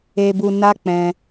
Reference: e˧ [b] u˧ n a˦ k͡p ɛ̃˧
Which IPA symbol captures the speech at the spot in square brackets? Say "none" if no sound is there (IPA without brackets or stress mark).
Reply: b